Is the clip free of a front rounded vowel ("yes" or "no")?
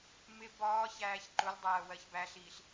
yes